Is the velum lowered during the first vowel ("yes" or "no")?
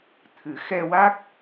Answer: no